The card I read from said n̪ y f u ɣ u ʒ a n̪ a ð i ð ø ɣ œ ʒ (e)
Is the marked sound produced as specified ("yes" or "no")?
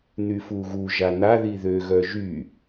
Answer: no